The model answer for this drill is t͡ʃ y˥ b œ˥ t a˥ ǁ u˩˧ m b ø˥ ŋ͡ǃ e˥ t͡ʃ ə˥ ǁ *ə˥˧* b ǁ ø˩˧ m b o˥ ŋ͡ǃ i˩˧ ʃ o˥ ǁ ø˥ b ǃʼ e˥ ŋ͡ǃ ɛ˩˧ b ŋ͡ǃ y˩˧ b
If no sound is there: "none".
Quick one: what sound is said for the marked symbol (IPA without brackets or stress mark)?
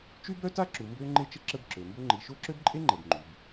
ə˥˧